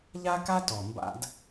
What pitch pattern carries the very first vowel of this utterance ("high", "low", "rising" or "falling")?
high